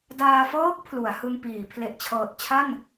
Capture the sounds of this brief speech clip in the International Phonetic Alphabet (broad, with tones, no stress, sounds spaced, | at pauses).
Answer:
d aː˧ f ɤː˦˥ k̚ pʰ l u˩˦ a̯ h ɯ˧ ŋ p iː˩˦ pʰ l e˨˩ ʔ t͡ɕʰ ɤː˨˩ t̚ t͡ɕʰ a˥˩ n